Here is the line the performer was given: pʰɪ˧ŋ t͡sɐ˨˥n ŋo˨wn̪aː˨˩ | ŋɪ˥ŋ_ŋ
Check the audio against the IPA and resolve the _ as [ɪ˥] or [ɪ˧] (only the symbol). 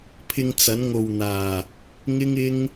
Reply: ɪ˥